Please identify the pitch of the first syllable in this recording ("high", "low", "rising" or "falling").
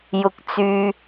rising